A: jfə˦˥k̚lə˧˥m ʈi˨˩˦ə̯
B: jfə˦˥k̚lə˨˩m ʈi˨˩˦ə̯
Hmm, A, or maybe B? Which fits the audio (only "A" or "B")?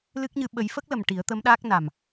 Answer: B